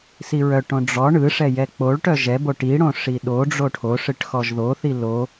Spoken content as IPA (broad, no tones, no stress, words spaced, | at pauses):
siɹœʈõ ɖ͡ʐɔ ɳɯʂɛ jɛk͡poɭʈœ ʒɛbo ʈiɽõ ʂiɗoɖ͡ʐo ʈʰoʂɨʈ xɔʒðoθi lo